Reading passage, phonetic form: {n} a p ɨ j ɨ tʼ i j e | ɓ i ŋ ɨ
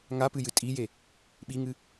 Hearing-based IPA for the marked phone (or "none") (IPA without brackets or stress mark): ŋ